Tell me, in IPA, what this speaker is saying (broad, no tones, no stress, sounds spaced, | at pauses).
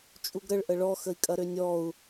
t͡ʃʼ u ɡ ɾ ə ɭ ʔ ə ɭ ɔ x ə i̯ kʼ ɐ ɾ ø nʲ ɔ u̯